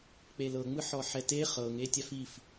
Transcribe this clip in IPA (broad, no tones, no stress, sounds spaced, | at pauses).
k͡p e l ɤ ŋ͡m ɯ ħ ɔ ħ ɛ t e χ ɤ ŋ e tʲ a f i f